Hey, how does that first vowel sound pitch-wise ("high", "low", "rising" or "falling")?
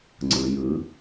low